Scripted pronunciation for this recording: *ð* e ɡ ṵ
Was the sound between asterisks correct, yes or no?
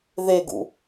yes